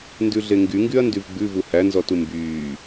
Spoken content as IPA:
n d ʉ ɮ e ŋ ɡ y ŋ ɡ y ɐ̯ n d y v ɡ͡b ʉ v u h æ n z ɔ t u m b yː

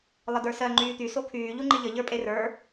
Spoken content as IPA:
lˠ ə d ə˞ s ɜ ŋ͡ǃ yː t̪ y s o kʰ yː ʎ u ŋ͡ǃ i ʎ ə ʎ ə˞ pʼ e r ə˞

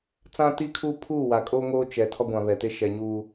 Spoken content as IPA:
t͡s ã˦ t i˦ kʰ uː˦ pʰ uː˦˨ w a˨ kʼ oː˦ ŋ oː˦ t͡ʃ ɛ˨ tʰ ɔ˦ ɡʷ ã˨ β ɛ˨ t e˦ ʃ ɛ˨ ɲ uː˨

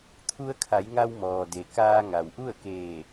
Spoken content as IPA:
t̪ʰ u˧ ə̯ kʰ a˩˧ j ŋ a˧ w m ɔː˩ d e˩ k aː˧ ŋ a˩ w ʔ u˥˨ ə̯ k eː˧˩

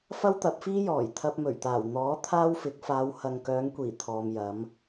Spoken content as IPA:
f ɐ˥ w t̪ ɐ˨˥ p̚ f iː˥ j ɔː˨˩ j t̪ʰ ɐ˧ p̚ m ɵ˨˩ ɥ t̪ aː˨˩ w n̪ ɔː˨˥ t̪ʰ aː˥ w f ɪ˨˥ k̚ f aː˨˧ w h ɐ˨ ŋ k œː˨˧ ŋ kʷ iː˨˩ t̪ʰ ɔː˨ m j ɐ˨˧ m

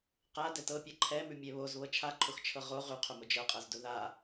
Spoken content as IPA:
q a d ɛ t ɤ pʲ ɤ ǃʰ ɛ m ʉ mʲ ɛ β o z β ɤ t͡ʃʰ a ǃʰ ʊ x t͡ʃʰ ɤ ʁ o ʁ ʉ qʰ ʊ m ʊ d͡ʒ ɤ qʼ ɤ z d ʊ ð a

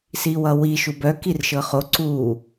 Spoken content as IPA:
s i w ʌ w i ʃ u b œ k i r ʃ ɤ χ o ǀ u

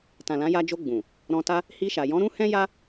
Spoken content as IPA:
t ã˨ l ã˨˦ j a˧ d͡ʒ o˧ ɡ͡b ũ˨ | ɾ ɔ̃˧ t a˦ | h i˧ ʃ a˨ j ɔ̃˨˦ ɾ ũ˦ h ɛ̃˦ j a˦

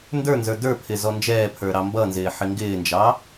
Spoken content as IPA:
n d ə˞ n z ə˞ d ə˞ pʰ ɪ z ɔ n d͡ʒ ɛː pʰ ə˞ ɾ ɑ m b ʌ n z ɪː ħ ɪ ŋ ɡ ɪː n d͡ʒ ɑ

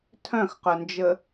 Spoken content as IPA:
tʰ œ̃ x q œ n d͡ʒ ə

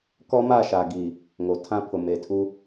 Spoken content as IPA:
k ɔ˦ m a˦˨ ʃ a˨ ɡ iː˨ | ŋ o˨ tʰ ã˦ pʰ ʊ˨ m e˨ tʰ u˦

